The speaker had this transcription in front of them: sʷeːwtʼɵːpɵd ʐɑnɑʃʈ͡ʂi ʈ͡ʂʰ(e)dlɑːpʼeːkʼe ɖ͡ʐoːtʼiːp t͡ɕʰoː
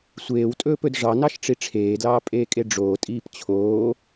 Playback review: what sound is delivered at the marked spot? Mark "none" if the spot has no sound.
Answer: eː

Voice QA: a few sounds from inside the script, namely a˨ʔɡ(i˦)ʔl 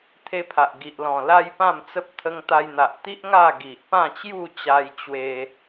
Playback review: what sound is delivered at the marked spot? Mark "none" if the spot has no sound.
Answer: i˨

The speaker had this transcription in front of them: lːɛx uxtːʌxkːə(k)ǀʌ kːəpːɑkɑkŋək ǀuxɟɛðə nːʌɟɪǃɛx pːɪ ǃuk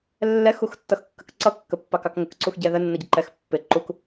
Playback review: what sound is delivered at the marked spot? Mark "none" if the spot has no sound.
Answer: k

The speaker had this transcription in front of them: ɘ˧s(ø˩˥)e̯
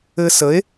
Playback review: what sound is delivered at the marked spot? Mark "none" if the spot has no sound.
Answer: ə˩˥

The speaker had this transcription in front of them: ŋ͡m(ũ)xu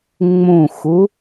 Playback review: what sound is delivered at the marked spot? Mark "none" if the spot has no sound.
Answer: ũ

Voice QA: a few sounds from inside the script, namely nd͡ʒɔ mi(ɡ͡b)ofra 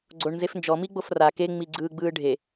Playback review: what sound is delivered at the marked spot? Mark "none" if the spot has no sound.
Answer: ɡ͡b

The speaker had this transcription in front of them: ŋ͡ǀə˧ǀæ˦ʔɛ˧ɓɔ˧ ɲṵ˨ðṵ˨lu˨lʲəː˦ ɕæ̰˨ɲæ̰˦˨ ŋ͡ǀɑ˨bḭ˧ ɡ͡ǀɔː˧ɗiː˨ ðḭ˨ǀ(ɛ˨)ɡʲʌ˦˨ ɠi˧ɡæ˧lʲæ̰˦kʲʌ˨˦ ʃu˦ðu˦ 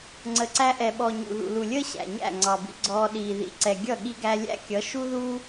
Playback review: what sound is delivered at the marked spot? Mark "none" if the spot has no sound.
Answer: ɛ˨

